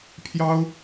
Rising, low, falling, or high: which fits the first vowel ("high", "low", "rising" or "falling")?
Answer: high